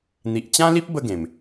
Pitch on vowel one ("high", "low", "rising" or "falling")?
low